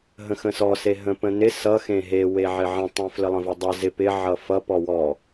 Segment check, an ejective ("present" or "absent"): absent